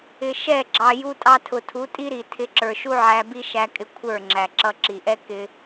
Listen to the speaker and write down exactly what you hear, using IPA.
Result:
ɪ˨ʃɛ˦˨ɡ͡ǁɑ˨ ju˧tʼɑ˧ tʰʊ˨tʰu˨˦tʼi˦ɾi˨ tʰɪ˨˦ǁə˞˨ʃu˦ ʕæ˧bi˦ʃæ˧kʼɪ˧ kʷʰə˞˦˨ŋ͡ǁæ˨ǁʌ˧ ǁi˨ʔɛ˦ kɪ˦

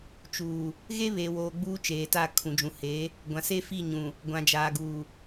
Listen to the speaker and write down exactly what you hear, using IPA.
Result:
t͡ʃuː˨ | ɣe˦βeː˨woː˨ ɡ͡buː˦t͡ʃeː˨ta˦˨ kʰũ˨d͡ʒũ˨he˨˦ | ɡʷã˨se˦fi˦˨ɲũ˨ | ɡʷã˨d͡ʒaː˨ɡuː˨

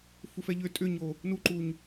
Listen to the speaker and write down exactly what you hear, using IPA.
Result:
fufɛʎʏ tʼʏɲo | nuǃuɲ

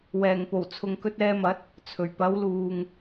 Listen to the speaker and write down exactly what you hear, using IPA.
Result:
wɛː˨˩ŋpo˨˩w t͡sʰʊ˨ŋkɵ˧t̚ɛː˧mɐ˨˥t̚ | t͡sʰɵ˨˩ɥpɐ˨˧wluː˨ŋ

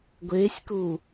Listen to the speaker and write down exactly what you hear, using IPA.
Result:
ɡʷeːsʲku

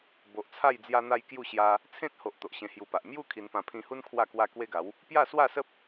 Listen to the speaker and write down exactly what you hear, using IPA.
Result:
bo˨ʔt͡sʰa˥˧j d͡zja˧n̪a˧j kju˥˧ɕja˧ | t͡sʰẽ˦t̚ho˨ʔ t̪o˨ʔɕẽ˧hju˧pa˨ʔ mju˥˧ kʰi˧npã˧ pʰĩ˧hu˦n kʰwa˥˧kwa˦ kwe˦ɡa˨˦w | pja˥˧swa˥˧ sə˦p̚

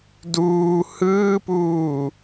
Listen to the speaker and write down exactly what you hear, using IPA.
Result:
duː hɯːpuː

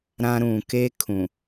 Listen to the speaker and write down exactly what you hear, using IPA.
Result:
ɾã˦ ɾũ˨ ke˦kʰũ˨

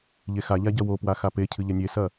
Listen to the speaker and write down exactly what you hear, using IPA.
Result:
ʎexaʎa ɟɐwopwa xapecʰɨ ʎɐnʲesɐ

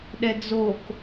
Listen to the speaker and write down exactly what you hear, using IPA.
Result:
ɗɛd͡zok

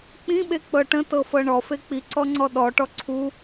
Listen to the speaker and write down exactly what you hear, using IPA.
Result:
k͡pĩɓek͡pɤ ʈə̃tɤfɤ ɳɔfe k͡piǀɔŋ͡ǀɔ ɗɔʈɔ ǀʰu

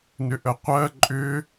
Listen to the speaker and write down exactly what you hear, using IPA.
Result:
nʏʔəqʷɜ ǃʼʏ

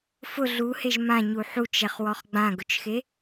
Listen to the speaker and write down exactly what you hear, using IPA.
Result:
fʊ ɮuheʒ mãɲu ħut͡ʃɛχwɔχ ɡ͡bãɡʊt͡ʃxe

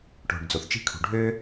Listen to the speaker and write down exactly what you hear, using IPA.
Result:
ʈo̤˩ɖd͡zo˩θ t͡ʃi̤˦kʰṳ˩ɖʱøː˥

